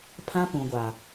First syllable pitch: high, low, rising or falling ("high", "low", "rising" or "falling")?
high